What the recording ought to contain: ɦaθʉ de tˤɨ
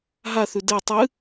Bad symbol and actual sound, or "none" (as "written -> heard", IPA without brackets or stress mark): none